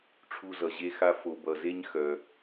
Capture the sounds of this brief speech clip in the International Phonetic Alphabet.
ʈ͡ʂʰu˨zʌ˩ʑe˨xa˨ fo˩bʌ˩ze˨ɲ xœ˩

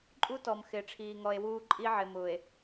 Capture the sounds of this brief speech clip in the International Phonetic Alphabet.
ǃʼu˦tɔ˨m xɪː˨ʈ͡ʂʰiː˨ŋɔ˨e̯ wuː˦ ǃʼi˦ʕɪ˨mʊː˨e̯

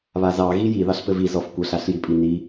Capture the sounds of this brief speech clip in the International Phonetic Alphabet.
βazɑ ɣiji ðɑɬpɘviz ɔfkʷəɬ aɬjipʼini

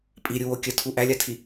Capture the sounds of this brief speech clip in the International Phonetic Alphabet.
pʼiɾʲuwo kʲətʰu ʔælʲatʰi

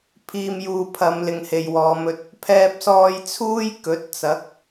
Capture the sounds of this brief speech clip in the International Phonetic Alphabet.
pʰiː˧mjuː˧pʰɐ˨˧m lɪ˨ŋhe˨jwɔː˨˧mɵ˧t̚ | pʰɛː˧p̚sɔː˧j t͡sʰuː˥jkɵ˨˥t̚t͡sɐ˨˥k̚

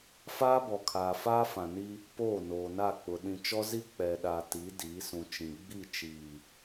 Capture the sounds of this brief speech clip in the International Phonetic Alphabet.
faː˦bɔ˨kʰaː˨ faː˦fã˨ni˦ | poː˦˨noː˨na˦˨k͡pʊ˨ ɗĩ˨t͡ʃɔ˦ zi˦ k͡pɛ˨ɗa˨ti˨˦ diː˨˦sũ˨t͡ʃĩ˨ ɡ͡bi˦˨t͡ʃiː˨

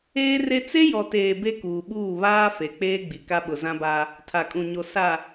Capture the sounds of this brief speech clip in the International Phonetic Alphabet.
eː˦re˦ t͡se˦jɔ˨ teː˨ be˦kuː˨ɓuː˦˨ βaː˦ fe˨k͡peː˦ɡ͡bi˨ ka˦ɓʊ˨zã˦ba˦ | tʰa˨kʼũ˨ɲo˨ sa˨

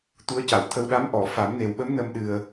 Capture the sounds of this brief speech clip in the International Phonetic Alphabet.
t̪u˧˥ə̯ca˨˩˨wt̪ʰə˧w ɗa˧˥mʔɔ˨˩˨ fa˨˩˦mne˨˩wɓə˧˥m nə˧mɗɨ˨˩ə̯

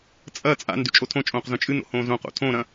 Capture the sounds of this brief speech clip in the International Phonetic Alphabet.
t͡sʼɐ t͡sʼa̰n dʉt͡ʃʼotʰõt͡ʃʼõːq zõt͡ʃʼɨno̰ hõːzõqo̰ tʰõːɾɐ̃

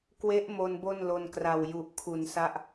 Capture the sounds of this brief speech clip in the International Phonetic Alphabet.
kwe˦˥ʔmo˧n bo˥˩nlo˧nkra˨˩w ju˨˩ʔkʰu˩˦nsa˦˥ʔ

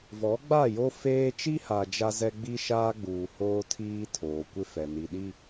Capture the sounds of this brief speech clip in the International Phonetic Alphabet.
vɔ˨˦ɡ͡ba˦˨jo˦ feː˦ t͡ʃi˦ha˨ d͡ʒa˦zɛ˦ ɡ͡bi˦ʃaː˦ɡ͡buː˨ hoː˦tʰiː˦ tʰoː˨kʷɪ˦fɛ˨ ni˨ɗi˦

